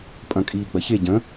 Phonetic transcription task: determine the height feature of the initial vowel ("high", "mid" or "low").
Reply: low